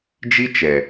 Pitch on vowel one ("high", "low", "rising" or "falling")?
high